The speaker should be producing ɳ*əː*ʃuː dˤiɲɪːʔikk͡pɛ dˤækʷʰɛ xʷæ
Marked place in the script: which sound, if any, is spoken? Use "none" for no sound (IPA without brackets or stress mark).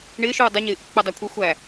ɪː